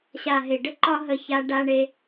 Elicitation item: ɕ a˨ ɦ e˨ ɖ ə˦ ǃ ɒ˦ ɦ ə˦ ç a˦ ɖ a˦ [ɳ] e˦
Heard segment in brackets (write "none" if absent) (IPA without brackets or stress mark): ɳ